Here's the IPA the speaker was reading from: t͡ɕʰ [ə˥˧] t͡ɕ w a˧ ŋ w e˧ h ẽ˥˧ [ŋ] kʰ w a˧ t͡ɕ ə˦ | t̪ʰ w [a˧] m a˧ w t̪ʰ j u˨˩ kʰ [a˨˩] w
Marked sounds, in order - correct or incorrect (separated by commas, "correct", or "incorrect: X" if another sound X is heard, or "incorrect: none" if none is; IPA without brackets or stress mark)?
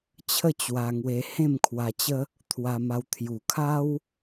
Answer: correct, incorrect: m, correct, incorrect: a˦